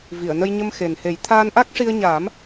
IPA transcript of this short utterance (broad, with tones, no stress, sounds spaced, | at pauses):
v i˨˩˨ ə̯ n ə˧ j ɲ ə˧ m x e˨˩ n h e˨˩˦ j t̪ʰ aː˧ n ʔ a˦˥ k̚ ʂ i˧ ə̯ ɲ aː˨˩˦ m